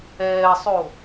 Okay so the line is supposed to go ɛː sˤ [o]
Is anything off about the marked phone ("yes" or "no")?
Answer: no